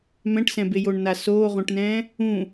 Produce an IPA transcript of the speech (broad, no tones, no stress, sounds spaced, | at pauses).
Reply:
m ɛ̃ ʈ s ɛ̃ b e j o ɳ n a s oː ʁ õ ʈ n ɛ̃ː | ũ